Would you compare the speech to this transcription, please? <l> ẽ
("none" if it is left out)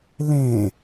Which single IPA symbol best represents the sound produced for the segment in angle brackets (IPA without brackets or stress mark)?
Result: l